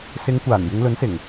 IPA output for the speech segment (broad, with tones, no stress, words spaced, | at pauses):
sɪ˨˧ŋkʷaː˨˩n jɪ˨˧ŋlɵ˨˥nsɪ˨˩ŋ